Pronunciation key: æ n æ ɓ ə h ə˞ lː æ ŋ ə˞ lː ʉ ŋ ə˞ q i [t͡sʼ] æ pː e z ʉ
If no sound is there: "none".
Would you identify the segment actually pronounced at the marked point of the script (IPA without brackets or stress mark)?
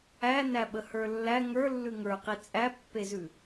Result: t͡sʼ